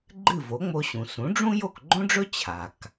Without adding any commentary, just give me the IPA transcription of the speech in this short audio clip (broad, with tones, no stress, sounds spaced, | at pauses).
ɡ͡ǃ ɨ˥˩ v o˩˥ ŋ͡m o˧ ɕ ũ˩ s ũ˩˥ ɖ͡ʐ ũ˥ j o˥˩ k ɡ͡ǃ õ˥ ɖ͡ʐ ɵ˥ t͡ɕʰ a˩ k